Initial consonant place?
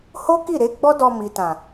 glottal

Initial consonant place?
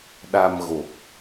alveolar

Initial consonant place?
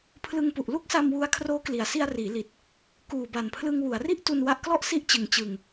labial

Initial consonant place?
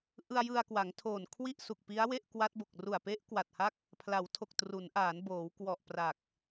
glottal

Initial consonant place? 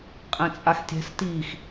uvular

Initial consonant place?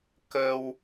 velar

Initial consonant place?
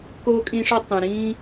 velar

